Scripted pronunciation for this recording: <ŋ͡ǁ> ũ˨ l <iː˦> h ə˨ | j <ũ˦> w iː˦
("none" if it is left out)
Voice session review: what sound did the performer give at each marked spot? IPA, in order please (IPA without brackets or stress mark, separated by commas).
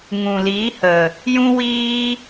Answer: ŋ, iː˨˦, ũ˦